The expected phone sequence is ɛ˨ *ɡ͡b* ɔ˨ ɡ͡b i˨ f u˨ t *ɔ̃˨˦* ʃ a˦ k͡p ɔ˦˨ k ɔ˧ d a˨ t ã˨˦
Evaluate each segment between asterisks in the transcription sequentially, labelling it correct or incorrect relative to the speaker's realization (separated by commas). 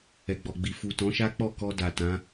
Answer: correct, correct